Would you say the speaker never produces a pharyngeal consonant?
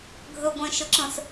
yes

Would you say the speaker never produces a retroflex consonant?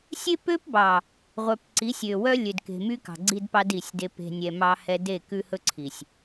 yes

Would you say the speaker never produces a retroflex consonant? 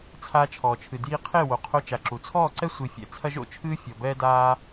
yes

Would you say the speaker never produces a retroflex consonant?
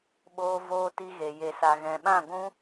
yes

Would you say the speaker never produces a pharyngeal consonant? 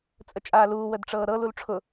yes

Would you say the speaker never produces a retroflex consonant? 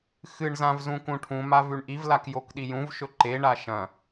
no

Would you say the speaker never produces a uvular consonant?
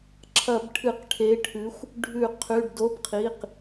no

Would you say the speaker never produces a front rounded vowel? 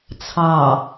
yes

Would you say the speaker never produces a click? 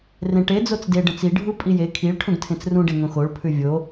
yes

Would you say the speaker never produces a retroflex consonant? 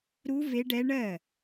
no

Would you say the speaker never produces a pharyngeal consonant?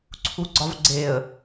yes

